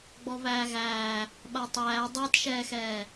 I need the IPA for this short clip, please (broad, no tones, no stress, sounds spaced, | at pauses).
ɡ͡b ɔ β æː ɣ æː | ɓ a tˤ æː dˤ a t ʃ ɛː x ɛː